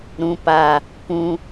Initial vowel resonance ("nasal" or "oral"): nasal